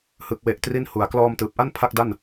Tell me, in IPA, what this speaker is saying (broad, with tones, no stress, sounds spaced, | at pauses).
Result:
h ɯ˨˩ k̚ w e˨˩ ʔ t r i˥˩ n h u˨˩ a̯ k l ɔː˧ m t ɯː˨˩ p̚ ʔ a˥˩ n pʰ a˥˩ k̚ d a˥˩ n